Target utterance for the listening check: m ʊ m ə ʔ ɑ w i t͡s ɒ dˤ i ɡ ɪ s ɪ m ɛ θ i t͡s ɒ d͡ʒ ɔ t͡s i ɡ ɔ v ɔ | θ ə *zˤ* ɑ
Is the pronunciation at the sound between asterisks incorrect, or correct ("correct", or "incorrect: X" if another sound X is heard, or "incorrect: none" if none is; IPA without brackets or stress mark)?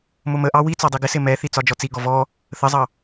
correct